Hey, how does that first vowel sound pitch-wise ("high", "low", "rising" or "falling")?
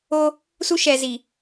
high